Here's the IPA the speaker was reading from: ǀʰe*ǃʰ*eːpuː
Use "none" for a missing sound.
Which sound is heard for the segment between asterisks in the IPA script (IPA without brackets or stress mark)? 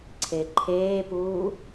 ǃʰ